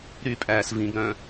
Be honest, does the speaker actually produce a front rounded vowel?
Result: yes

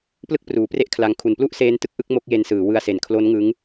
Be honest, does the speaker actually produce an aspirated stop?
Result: yes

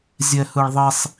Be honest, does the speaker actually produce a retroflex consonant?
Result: yes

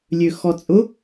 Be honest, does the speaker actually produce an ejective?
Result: yes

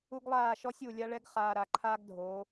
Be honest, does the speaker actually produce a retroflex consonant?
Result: yes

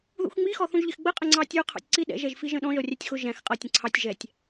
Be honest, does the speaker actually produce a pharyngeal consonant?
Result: no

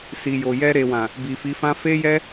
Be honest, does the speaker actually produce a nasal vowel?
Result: yes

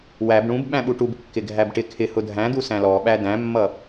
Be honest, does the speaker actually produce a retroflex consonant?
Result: yes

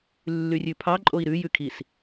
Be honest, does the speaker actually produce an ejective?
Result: yes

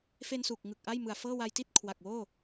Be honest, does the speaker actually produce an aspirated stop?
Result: yes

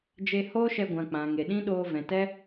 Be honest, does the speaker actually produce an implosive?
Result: yes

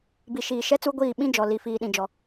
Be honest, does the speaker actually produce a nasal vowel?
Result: yes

